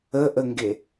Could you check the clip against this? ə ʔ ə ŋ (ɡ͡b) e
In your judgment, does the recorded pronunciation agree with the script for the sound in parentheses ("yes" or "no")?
no